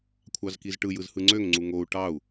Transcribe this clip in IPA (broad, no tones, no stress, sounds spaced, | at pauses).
kʷʰ ɑ z k i z ʈ ɯ j ɯ z h ɯ ŋ͡ǀ ø ŋ ŋ͡ǀ u ŋ o u̯ ʈ ɑ u̯